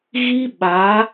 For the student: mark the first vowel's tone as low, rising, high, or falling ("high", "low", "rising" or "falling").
high